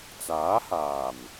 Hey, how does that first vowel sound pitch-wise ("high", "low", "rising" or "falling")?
rising